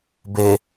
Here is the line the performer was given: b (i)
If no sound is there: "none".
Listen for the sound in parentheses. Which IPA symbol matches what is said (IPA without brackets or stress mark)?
e